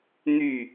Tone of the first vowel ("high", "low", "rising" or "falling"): falling